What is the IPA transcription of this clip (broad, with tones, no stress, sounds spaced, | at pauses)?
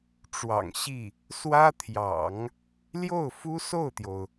ʈ͡ʂ w ɑ̰˨˩ ŋ ɕ i˥˩ | s w ä˥ t̪ʰ j ɑ̰˨˩˦ ŋ | l j o˥˩ ʊ̯ f u˥ s o˥˩ ʊ̯ t̪ j o˩ ʊ̯